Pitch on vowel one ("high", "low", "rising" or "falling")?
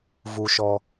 low